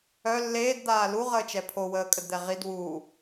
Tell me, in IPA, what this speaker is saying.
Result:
œ lː eː d d̪ aː l u ʁ əː t͡ʃ ɛ pʰ o w əː kʼ ə d d̪ ɛ ʁ i d w uː

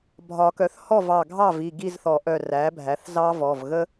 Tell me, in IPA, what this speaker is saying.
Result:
bʱ ɒ˨˩˦ k œ˩˥ θ h ɔ˥˨ v ɑ˧˩ ɡʱ ɑ˥˨ v i˩˧˩ ɡ i˥˨ z θ ɔ˨˩˦ ʔ œ˧˩ r æ˩˥ bʱ æ˩˥ θ z ɑ˦ v ɔ˩˧˩ v ɣ ə˦

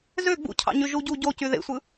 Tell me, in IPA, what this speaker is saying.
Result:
z ø ɡ͡b ṵ cʰ ɑ̰ ɲ y ʒ u ɟ u ɟ o c y ð ḛ sʷ ɯ

